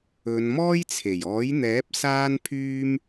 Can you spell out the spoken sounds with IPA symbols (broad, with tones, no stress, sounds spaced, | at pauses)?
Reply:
ɵ˨˧ n m ɔː˥ j t͡sʰ e˨˩ j ɔː˨˥ j n̪ ɛː˨˥ p̚ s aː˥ n pʰ yː˥ m